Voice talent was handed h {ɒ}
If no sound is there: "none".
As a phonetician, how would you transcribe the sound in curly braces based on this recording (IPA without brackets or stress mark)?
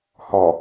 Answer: ɒ